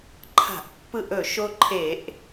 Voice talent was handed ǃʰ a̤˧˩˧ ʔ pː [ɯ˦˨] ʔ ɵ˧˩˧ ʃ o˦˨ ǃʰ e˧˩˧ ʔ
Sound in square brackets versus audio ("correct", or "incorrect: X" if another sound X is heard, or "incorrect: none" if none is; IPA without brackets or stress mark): correct